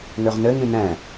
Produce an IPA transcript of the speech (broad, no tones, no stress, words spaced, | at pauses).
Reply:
ŋøʁnɘ ŋĩnɛ̃